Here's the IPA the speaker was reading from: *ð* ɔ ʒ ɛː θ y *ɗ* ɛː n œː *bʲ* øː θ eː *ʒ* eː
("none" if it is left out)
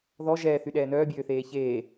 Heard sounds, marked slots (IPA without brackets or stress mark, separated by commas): ð, ɗ, bʲ, ç